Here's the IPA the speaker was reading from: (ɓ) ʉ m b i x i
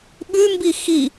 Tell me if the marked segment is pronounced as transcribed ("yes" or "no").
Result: yes